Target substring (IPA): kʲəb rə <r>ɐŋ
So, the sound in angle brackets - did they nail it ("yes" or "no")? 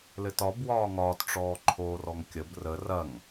yes